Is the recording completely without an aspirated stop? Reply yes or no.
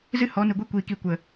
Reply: yes